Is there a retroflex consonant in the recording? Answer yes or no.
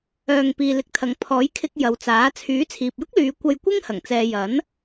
no